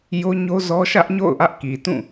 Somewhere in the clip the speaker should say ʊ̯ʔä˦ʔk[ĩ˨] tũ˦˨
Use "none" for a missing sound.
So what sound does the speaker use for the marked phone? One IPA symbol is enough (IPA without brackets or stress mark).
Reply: i˨